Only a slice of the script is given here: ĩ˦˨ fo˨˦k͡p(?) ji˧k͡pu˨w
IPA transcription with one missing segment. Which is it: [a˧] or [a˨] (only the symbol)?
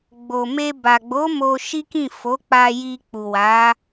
a˧